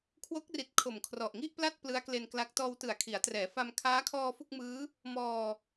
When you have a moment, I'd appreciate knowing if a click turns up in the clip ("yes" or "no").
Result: no